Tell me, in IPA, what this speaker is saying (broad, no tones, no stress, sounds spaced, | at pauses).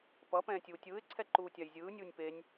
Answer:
p ʌ p ɛ̃ː tʲ uː tʲ ɯː ɪ̯ ǀʰ ɛ ǃ uː tʲ a j zʲ ɯː nʲ uː nʲ p e nʲ